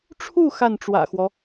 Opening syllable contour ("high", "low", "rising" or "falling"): falling